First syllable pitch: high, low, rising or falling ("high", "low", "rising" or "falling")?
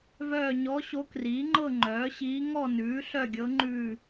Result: falling